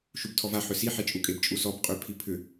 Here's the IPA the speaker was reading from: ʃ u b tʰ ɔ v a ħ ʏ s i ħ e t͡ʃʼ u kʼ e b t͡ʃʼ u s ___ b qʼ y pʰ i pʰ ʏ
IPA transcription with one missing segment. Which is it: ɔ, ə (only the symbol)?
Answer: ɔ